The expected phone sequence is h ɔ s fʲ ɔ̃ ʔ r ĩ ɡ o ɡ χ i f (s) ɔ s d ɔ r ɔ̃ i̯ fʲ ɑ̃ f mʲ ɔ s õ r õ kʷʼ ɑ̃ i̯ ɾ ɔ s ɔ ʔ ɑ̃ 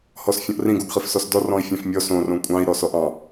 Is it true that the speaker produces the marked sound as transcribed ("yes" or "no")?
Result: yes